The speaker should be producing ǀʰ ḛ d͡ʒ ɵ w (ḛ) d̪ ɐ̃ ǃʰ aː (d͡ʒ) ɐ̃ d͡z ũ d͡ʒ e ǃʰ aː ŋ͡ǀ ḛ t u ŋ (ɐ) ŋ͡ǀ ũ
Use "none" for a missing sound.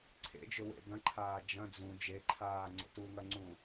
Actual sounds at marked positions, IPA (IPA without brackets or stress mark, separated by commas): ḛ, d͡ʒ, ɐ